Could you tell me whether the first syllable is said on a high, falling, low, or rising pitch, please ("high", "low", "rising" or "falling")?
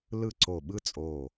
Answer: falling